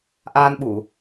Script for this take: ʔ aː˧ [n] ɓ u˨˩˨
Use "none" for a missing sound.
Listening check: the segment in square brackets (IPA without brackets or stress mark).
n